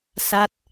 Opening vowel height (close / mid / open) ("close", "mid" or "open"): open